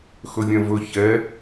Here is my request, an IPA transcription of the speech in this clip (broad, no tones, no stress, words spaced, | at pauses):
xɵvʲɛ̃vɵ çɛ